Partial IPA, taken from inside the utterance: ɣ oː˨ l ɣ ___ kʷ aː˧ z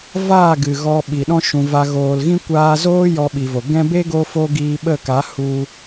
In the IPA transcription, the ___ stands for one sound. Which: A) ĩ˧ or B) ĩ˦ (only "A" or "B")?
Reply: B